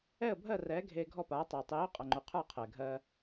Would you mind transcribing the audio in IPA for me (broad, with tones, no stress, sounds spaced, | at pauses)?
ɛ˥˩ ə̯ bʱ ɜ˥˩ r ɛː˩˥ ɡʱ eː˧ ɡʱ ɔ˥˩ p aː˩˥ tˤ ɛː˩ tˤ eː˩˥ ʊ̯ qʼ ʌ˩ ŋ͡ǃ u˩ qʰ ə˞˥˩ qʰ ɛː˩ ɡʱ ɜː˧